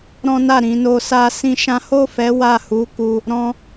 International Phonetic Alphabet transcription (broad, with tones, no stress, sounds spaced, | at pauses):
ɾ ɔ̃˦ n a˦˨ ɾ ĩ˧ n o˧ s a˦ s ĩ˦ ʃ ã˦ h o˦˨ f ɛ˨˦ w a˦˨ h u˨˦ k u˧ | ɾ ɔ̃˧